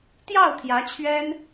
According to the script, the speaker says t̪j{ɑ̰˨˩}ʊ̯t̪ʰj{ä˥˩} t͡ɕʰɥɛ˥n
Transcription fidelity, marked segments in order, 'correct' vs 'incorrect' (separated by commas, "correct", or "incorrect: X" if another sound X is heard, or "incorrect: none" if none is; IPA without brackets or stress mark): incorrect: ɑ˥˩, incorrect: ä˧˥